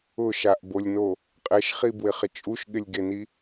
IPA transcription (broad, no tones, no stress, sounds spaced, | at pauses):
ʊ ʃ a ʔ b o lʲ n o | qʼ e ʃ χ i b w ɪ χ ɪ t͡ʃʼ u ʃ ɠ ɪ lʲ ɡ e n i